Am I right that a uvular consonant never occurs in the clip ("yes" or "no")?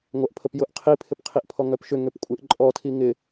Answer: no